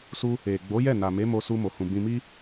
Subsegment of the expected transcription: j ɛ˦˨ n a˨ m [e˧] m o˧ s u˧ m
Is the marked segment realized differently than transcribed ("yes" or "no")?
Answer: yes